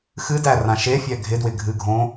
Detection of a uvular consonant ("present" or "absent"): absent